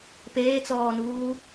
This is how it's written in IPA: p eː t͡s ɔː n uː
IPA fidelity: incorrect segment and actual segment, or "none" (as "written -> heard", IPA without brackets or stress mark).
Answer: none